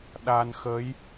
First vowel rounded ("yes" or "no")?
no